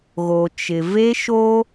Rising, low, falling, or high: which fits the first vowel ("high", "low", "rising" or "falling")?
low